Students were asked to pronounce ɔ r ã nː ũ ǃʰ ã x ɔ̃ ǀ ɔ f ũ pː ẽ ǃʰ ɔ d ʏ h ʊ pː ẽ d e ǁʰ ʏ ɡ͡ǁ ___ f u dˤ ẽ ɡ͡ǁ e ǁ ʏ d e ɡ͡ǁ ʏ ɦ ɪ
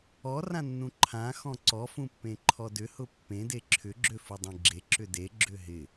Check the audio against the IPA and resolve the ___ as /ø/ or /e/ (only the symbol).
ø